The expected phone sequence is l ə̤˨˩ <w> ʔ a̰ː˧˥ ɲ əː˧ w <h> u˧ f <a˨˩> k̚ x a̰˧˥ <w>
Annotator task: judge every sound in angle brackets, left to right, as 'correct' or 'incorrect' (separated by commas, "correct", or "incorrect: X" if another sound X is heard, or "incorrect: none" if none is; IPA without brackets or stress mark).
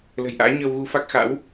incorrect: j, incorrect: ɣ, incorrect: a˦˥, correct